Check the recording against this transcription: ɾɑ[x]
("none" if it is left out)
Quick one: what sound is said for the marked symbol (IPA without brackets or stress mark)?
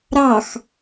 x